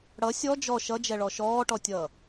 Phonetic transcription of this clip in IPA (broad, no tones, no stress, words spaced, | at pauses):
ɽʌ sʲɔ d͡ʒɔ ʃʌd͡ʒɛɭɔ ʃɔːʈɔtʲʌː